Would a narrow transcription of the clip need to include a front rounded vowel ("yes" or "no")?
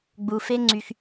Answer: yes